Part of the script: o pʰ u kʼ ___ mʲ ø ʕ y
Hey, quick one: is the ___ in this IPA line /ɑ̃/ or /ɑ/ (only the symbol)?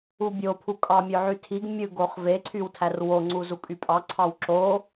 ɑ